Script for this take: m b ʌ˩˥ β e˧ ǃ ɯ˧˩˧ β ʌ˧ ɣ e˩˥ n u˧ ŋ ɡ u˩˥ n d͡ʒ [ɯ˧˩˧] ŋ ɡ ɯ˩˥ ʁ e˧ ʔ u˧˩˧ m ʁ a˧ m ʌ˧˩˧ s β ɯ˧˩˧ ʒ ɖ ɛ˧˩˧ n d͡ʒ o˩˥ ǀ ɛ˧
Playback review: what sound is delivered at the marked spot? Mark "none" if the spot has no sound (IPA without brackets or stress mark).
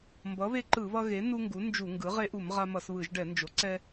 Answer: u˧˩˧